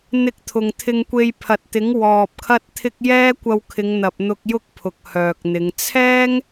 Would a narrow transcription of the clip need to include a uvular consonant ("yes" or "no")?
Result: no